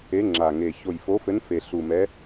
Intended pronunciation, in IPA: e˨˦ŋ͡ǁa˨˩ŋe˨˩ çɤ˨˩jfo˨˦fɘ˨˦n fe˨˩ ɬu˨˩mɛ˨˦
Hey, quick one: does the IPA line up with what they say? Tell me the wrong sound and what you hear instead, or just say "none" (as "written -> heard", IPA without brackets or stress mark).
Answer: ɤ˨˩ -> o˨˩